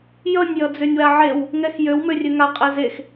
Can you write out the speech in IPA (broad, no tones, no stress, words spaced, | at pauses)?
jʌnʲ jʌd͡zønʲwaʕew | ŋɛxjøw mørʲøŋa qʼɛzex